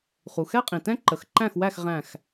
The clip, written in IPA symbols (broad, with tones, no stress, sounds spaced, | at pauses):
χ u˩ x ɛ˦˥ qʼ ĩ˩ t ɛ̃˦˥ ǃ ə˩˧ x ǃ æ̃˥˩ x w æ˥˩ x ʁ æ̃˥˩ x